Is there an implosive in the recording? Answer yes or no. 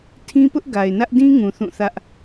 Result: no